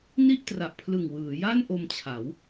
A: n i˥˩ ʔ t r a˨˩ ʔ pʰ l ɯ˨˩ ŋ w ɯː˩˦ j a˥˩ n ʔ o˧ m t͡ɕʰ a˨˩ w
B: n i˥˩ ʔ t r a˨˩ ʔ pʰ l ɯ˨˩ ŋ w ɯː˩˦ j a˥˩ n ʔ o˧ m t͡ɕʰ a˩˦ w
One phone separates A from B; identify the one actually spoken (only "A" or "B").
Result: B